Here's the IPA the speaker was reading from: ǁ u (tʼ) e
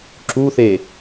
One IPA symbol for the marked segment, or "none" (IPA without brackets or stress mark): θ